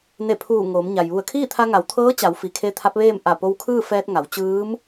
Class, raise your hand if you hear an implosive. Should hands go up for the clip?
no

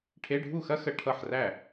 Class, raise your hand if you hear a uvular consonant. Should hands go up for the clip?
no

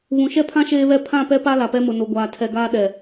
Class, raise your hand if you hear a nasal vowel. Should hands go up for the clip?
yes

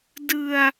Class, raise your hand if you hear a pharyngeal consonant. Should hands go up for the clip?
no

